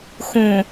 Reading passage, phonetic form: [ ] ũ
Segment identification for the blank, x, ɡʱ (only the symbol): x